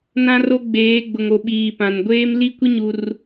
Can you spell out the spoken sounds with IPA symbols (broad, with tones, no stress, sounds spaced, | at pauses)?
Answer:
n ã˦ r o˦ ɡ͡b eː˨˦ ɡ͡b ʊ˨ ŋ o˨ ɓ iː˨ p ã˨ n ɡʷ eː˦ m l i˦ kʷ i˦ ɲ u˦ r